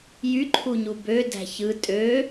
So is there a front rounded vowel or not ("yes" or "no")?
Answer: yes